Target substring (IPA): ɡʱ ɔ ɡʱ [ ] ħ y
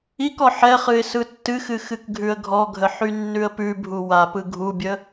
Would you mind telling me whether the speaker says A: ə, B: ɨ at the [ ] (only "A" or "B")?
A